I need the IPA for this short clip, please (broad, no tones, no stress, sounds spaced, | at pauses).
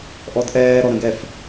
ʔ ɔ d ʔ ɛː ɾ ɔ ɾ ə̃ ɡ ɛ f